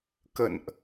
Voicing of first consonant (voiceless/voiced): voiceless